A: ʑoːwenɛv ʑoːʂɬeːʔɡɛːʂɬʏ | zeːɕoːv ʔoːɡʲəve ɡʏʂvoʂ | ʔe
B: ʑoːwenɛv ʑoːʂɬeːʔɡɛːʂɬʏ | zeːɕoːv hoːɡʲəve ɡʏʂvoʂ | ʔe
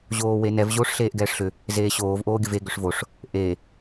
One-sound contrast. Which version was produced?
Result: A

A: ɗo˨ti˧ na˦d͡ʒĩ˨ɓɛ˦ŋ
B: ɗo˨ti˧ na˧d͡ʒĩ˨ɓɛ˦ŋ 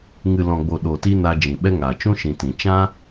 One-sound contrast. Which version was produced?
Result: B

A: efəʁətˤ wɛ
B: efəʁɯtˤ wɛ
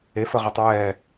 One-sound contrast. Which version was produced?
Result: A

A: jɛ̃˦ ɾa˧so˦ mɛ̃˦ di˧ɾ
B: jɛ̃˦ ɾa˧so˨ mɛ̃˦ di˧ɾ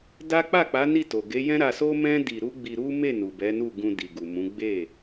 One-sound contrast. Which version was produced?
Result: A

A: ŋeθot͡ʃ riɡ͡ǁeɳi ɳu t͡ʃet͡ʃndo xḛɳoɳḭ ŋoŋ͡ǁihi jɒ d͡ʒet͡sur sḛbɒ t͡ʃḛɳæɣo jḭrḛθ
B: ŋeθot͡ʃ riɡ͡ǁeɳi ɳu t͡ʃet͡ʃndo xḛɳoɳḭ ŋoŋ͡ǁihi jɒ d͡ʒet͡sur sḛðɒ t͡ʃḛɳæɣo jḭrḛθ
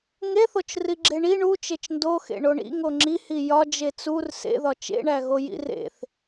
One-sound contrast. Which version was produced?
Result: B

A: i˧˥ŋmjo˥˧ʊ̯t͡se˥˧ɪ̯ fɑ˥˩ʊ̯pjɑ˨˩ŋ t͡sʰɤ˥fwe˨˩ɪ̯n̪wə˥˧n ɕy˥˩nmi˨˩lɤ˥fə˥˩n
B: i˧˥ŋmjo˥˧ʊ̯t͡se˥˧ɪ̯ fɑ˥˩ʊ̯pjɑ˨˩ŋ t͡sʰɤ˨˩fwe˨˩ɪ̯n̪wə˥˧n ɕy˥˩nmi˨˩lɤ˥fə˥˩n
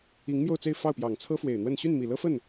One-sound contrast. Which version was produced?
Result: A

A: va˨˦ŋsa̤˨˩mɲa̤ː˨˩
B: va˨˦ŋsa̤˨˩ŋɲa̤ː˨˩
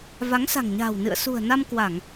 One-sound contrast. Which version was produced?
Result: B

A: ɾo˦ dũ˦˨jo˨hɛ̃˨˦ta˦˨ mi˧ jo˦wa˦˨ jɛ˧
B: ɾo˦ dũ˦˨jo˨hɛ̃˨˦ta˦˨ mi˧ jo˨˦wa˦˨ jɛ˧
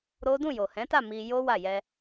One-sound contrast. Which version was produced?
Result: A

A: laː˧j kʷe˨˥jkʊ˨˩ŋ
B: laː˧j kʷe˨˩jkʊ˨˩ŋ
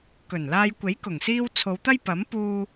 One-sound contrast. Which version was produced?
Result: A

